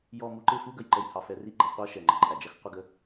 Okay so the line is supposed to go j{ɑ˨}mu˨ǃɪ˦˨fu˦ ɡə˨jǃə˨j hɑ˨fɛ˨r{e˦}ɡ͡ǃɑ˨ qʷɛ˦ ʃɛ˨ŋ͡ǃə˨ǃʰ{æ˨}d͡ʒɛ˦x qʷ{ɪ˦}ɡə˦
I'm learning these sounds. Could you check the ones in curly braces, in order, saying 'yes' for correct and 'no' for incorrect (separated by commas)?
no, no, yes, yes